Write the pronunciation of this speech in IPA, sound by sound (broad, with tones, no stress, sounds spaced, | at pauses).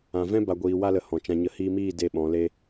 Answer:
ã˨ v ɛ̃˦ b a˨ ɡʷ iː˨ w a˧ l ə˨ h ɔ̃˨ t͡ʃ ã˧ ɲ ə˧ h iː˧ m iː˦˨ d e˦˨ ɓ ɔ̃˨˦ l e˦